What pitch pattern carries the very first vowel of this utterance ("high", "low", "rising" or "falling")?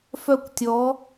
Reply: falling